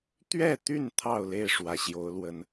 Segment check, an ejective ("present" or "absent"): absent